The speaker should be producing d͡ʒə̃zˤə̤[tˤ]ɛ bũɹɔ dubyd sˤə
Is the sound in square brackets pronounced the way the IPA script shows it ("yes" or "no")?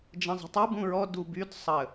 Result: yes